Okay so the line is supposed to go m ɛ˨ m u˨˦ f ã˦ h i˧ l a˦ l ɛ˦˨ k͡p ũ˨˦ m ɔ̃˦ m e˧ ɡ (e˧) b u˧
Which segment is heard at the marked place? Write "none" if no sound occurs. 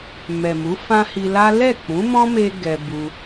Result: ɛ˧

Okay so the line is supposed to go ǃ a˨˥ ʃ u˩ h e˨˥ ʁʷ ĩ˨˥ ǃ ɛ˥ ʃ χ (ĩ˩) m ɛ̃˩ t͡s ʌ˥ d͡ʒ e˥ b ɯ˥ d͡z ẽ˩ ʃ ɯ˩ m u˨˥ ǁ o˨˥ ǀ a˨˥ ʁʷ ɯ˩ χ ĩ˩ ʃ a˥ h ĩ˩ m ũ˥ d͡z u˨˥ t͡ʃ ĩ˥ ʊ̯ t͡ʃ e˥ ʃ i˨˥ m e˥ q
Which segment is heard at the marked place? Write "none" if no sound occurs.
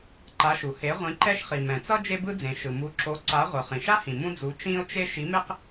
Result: i˩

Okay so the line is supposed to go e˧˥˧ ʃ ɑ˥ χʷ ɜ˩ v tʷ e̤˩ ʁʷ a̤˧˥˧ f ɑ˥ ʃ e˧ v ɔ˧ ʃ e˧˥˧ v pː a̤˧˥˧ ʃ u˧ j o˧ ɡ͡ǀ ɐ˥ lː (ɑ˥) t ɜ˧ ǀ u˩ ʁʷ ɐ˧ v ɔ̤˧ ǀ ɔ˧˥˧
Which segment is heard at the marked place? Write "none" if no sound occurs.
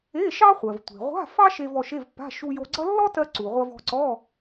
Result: ɔ˥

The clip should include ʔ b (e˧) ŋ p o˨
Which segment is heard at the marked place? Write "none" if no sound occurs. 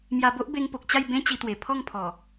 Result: e˧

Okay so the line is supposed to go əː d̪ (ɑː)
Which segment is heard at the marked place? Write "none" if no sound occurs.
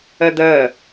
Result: əː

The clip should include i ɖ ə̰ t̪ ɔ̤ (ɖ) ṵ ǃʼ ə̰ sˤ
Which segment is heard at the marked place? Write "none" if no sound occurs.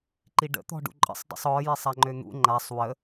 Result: ɖ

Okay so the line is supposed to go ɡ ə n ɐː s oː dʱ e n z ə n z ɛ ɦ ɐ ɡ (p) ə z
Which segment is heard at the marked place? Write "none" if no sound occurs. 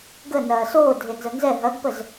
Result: p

